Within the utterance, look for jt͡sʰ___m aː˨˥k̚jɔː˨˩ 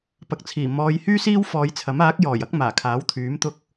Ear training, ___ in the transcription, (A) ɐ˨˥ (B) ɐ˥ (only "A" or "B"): A